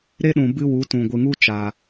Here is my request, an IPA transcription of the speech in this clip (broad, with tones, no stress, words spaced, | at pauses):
ɾe˦ɗũ˨ bɨ˦wu˨˦tũ˨ ɡʷɨ˨ŋu˦ t͡ʃaː˨